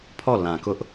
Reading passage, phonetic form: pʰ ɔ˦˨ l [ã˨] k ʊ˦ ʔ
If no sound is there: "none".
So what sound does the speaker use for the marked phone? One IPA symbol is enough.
ã˨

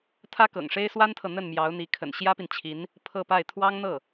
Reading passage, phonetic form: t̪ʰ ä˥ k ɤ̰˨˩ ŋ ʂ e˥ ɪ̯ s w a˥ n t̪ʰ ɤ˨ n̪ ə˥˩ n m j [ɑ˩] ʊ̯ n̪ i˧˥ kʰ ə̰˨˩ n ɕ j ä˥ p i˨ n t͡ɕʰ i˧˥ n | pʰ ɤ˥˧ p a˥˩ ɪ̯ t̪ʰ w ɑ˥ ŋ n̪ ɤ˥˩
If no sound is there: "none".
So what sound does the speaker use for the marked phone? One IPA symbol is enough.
ɑ˧˥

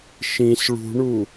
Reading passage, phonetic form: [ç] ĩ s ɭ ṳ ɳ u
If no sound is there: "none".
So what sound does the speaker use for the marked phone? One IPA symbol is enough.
ʃ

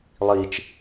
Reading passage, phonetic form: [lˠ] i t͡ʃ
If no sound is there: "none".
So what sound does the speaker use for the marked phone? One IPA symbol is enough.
lˠ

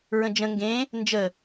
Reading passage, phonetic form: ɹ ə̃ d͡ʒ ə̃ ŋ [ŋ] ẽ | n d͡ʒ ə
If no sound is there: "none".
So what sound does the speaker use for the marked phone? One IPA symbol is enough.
ɡ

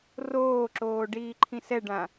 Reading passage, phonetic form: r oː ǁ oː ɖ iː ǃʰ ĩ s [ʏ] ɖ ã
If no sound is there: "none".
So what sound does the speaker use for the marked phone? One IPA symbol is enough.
ɛ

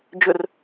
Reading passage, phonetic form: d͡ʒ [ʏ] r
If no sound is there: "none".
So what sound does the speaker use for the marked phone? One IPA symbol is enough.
ʏ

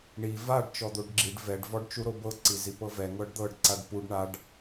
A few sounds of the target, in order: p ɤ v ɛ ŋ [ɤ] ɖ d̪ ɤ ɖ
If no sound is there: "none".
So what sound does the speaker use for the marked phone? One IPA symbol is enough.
ɤ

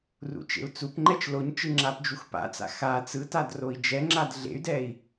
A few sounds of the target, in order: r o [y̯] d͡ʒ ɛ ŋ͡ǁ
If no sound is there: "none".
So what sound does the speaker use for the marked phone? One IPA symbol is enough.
i̯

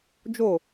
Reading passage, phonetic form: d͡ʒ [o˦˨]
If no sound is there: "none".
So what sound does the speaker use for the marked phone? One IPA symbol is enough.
o˦˨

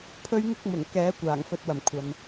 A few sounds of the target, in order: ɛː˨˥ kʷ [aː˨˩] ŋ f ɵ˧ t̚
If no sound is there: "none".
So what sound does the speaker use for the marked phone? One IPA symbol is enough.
aː˨˩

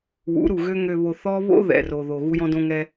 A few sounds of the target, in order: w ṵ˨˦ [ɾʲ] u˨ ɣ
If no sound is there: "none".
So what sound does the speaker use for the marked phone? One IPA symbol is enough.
ɾ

